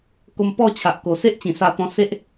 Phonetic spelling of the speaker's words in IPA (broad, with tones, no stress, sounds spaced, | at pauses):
k o˧ m p ɔ˥˧ t͡ɕʰ a˨ ʔ k o˨˩ s e˦ ʔ t͡ɕ ĩ˨˩ s a˧ t̪ ɔ̃˧ s e˦ ʔ